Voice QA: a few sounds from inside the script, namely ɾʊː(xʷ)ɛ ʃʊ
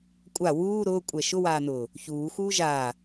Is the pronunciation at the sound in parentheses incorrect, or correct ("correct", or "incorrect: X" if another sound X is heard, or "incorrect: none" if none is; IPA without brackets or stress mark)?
incorrect: kʷʼ